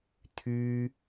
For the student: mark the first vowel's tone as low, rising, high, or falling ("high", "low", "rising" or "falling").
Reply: high